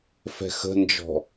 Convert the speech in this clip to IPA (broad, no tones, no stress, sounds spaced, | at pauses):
f ɛ̤ x ə̤ n d͡ʒ ɔ̤